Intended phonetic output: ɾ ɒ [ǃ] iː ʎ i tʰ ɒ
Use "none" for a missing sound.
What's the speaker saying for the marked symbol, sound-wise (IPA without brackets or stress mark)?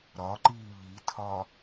ǃ